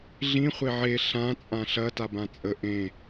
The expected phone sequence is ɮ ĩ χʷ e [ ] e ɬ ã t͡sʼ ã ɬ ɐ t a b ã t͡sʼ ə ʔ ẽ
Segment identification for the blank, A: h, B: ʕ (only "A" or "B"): B